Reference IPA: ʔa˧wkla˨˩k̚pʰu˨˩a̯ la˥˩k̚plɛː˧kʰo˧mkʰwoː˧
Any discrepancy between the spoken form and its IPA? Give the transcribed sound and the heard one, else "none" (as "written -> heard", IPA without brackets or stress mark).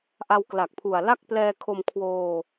none